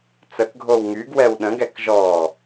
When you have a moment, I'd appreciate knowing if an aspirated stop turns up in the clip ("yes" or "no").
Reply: no